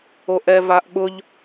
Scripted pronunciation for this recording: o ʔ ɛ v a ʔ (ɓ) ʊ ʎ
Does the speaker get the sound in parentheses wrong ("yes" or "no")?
no